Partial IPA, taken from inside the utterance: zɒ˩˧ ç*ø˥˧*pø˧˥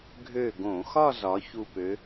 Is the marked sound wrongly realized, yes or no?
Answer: yes